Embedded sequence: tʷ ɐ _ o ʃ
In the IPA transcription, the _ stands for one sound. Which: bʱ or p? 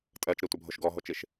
bʱ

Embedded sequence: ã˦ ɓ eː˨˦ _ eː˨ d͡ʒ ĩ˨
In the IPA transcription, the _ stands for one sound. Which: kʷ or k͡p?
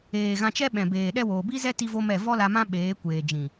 kʷ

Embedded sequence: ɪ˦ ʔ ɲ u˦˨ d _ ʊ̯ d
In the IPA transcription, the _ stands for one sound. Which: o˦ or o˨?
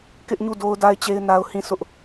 o˦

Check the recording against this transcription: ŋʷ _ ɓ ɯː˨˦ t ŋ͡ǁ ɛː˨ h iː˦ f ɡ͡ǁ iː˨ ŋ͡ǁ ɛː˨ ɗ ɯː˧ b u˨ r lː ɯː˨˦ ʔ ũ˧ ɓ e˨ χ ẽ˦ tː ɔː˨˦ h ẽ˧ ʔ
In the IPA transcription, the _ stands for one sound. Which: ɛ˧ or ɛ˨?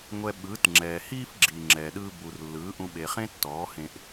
ɛ˧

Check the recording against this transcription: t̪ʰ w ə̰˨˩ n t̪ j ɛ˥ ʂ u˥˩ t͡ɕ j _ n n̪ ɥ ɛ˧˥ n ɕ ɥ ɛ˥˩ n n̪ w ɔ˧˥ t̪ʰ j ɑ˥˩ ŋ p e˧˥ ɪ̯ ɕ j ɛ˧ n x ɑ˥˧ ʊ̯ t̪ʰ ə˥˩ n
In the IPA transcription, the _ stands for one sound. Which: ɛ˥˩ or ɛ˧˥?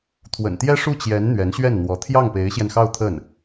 ɛ˧˥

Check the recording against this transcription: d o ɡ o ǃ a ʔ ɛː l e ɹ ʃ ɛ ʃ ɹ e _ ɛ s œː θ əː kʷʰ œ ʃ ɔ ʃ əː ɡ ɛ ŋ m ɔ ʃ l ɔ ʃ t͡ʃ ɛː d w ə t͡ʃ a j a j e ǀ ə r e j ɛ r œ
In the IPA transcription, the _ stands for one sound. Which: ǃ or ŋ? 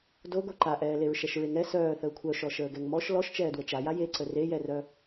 ŋ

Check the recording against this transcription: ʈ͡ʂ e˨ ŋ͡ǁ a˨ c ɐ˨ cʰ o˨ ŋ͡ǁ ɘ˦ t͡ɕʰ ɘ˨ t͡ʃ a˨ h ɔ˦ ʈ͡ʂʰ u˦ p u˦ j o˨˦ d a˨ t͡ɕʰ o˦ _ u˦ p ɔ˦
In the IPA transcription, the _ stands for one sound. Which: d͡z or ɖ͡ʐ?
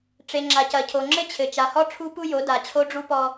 ɖ͡ʐ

